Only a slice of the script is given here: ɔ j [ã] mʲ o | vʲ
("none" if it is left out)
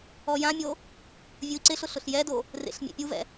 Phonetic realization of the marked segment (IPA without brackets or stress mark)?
ã